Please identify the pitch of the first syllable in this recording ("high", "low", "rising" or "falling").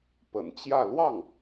low